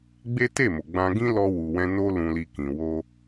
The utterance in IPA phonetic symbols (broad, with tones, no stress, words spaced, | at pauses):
ɡ͡be˦ te˦˨mo˨ ɡ͡bã˧ ɡĩ˦lɔ˧wu˨wɛ̃˧ no˦lũ˧li˧ kĩ˨ wo˧